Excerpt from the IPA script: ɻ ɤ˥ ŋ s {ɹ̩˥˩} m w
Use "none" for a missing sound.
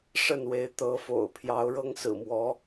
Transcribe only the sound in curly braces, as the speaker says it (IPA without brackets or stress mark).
ɹ̩˨˩